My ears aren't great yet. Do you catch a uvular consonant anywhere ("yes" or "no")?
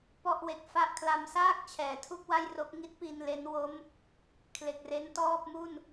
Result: no